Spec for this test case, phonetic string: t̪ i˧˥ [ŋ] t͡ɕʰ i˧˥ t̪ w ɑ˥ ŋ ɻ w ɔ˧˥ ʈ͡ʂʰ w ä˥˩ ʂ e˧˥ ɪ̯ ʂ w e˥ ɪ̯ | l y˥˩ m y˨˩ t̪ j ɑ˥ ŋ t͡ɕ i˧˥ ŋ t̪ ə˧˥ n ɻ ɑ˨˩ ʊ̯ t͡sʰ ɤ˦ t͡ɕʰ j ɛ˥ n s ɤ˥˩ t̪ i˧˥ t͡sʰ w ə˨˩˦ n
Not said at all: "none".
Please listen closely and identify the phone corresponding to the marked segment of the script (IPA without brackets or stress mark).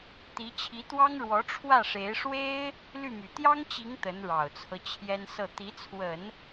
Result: none